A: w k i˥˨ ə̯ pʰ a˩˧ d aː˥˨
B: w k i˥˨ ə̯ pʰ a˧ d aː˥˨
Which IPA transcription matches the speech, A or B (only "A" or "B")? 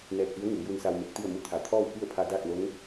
B